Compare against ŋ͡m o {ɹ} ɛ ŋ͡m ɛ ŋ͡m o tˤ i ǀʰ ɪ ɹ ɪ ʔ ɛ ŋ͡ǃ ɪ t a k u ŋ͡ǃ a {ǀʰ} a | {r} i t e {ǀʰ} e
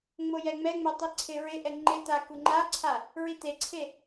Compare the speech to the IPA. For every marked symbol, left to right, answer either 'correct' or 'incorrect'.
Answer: incorrect: j, correct, incorrect: ɹ, correct

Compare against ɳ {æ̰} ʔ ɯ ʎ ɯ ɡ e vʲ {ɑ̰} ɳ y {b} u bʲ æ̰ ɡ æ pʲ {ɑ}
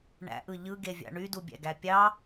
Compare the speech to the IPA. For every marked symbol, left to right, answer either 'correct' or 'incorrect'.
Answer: correct, correct, incorrect: d, correct

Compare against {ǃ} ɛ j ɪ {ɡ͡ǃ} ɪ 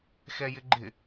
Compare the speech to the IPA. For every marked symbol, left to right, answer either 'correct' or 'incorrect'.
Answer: incorrect: x, correct

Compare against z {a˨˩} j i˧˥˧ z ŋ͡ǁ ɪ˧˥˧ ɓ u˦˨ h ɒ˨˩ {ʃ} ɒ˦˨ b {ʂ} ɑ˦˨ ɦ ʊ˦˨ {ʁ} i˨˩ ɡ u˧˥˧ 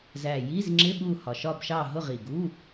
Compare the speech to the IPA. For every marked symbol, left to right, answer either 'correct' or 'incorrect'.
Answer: incorrect: æ˨˩, correct, incorrect: ʃ, correct

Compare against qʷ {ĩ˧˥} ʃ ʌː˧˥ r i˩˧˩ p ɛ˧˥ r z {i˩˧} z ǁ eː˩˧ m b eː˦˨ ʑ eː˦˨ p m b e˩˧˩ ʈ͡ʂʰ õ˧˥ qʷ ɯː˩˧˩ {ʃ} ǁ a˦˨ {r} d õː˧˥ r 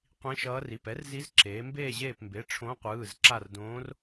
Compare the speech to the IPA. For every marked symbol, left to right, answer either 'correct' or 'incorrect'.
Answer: correct, incorrect: i˧˥, incorrect: z, correct

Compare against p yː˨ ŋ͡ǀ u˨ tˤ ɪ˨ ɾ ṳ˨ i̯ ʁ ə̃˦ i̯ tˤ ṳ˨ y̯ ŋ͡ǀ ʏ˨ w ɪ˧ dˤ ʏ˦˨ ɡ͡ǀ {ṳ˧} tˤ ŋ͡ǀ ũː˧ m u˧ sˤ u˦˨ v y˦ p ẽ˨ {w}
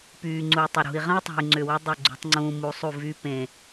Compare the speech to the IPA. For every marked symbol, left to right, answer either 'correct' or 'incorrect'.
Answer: correct, incorrect: none

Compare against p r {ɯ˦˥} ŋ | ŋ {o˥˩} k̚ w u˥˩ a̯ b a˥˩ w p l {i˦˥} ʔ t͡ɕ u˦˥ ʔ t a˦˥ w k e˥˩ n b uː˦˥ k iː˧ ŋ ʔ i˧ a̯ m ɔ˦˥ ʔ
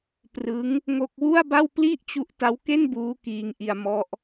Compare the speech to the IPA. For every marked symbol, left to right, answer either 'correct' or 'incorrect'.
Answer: correct, correct, incorrect: i˥˩

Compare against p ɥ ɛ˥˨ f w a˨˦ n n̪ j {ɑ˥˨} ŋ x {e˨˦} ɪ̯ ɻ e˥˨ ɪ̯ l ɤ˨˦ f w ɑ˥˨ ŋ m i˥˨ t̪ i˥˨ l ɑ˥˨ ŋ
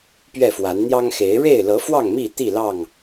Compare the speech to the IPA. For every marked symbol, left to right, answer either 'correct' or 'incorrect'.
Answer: incorrect: ɑ˦, correct

